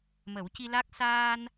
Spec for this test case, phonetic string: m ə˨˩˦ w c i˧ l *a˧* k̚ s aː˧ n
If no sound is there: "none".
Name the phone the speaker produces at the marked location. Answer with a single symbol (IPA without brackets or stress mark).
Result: a˦˥